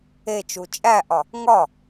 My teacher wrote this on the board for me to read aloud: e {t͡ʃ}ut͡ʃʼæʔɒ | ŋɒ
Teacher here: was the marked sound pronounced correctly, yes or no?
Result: yes